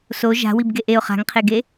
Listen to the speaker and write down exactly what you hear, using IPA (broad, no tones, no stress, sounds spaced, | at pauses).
s o ʒ a̤ w i b ɡ e ʔ e ʊ̯ χ a̤ ŋ qʰ e ɡ e